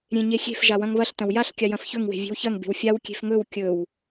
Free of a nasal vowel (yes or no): no